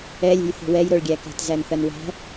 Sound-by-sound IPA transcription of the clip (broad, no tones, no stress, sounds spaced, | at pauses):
ɛ lʲ e̤ j θ e̤ w ɛ j ɾ o ɭ ɡʲ æ k ɛ̤ t z æ n θ ɐ n w æ̤